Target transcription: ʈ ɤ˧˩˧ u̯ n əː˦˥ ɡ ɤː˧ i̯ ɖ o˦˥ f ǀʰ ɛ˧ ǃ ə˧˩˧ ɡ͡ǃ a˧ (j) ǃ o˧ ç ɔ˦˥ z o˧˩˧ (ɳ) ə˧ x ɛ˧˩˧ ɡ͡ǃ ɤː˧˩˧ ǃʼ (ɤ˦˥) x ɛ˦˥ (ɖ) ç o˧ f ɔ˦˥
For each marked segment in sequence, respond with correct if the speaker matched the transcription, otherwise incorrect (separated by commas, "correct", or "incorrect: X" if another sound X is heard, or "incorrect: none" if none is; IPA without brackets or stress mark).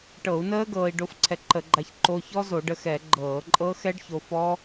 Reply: incorrect: ç, incorrect: ɖ, correct, correct